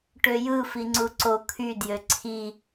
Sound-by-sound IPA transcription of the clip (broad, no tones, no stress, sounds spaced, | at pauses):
ʈ ø j ɯ f i ŋ͡ǀ u ǀ o kʰ y d j ø ǀʰ i